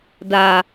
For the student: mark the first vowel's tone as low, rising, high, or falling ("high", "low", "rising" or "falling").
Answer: low